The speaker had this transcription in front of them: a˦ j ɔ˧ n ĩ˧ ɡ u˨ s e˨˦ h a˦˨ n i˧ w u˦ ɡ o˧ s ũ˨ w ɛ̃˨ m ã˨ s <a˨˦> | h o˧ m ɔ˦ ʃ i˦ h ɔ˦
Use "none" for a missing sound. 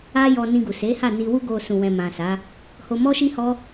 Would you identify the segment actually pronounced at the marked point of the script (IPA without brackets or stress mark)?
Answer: a˨˦